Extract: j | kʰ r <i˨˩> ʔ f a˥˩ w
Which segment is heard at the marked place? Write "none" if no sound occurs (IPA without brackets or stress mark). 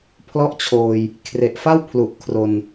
e˨˩